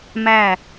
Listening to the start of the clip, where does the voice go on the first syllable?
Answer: falling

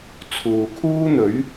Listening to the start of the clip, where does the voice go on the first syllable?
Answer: low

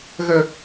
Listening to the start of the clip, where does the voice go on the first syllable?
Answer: high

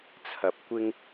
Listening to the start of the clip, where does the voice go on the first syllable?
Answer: low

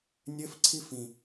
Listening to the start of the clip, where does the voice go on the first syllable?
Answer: high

